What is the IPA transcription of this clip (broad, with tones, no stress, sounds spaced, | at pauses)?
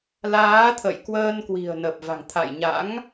l aː˨˦ t̪ʰ ə̰˧˨ j k w əː˧ n k w i̤˨˩ ə̯ n ə˨˩ p̚ v a̤˨˩ ŋ t̪ʰ a̰˧˨ j ɲ a̰˧˥ ŋ